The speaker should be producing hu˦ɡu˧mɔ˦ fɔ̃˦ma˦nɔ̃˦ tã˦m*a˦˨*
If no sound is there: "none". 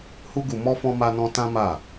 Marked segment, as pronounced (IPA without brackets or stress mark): a˦˨